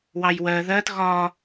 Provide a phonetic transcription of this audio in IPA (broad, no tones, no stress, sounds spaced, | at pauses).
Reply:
w ɑ j w ɜ ð ɜ t ɣ ɒ